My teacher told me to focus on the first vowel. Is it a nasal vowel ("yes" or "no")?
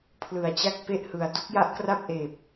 no